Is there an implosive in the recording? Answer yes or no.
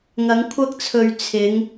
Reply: no